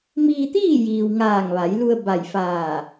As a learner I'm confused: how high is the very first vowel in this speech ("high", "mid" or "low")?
high